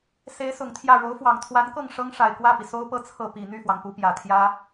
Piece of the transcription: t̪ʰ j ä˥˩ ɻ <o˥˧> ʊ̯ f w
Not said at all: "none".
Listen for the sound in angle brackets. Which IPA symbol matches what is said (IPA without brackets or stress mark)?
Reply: o˧˥